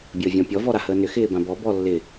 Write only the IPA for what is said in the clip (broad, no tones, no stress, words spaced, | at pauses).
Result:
bʲəːvʲɔ̃pʲɔ vɔɾahəːnʏ xɪːbãbɔ bɔlːɪ